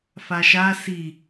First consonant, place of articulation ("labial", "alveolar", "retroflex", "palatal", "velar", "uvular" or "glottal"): labial